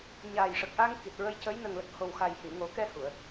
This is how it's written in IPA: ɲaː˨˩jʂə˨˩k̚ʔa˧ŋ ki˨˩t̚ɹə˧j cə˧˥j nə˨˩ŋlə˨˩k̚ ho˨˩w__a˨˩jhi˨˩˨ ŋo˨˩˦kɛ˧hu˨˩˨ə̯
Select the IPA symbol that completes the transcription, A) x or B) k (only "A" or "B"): A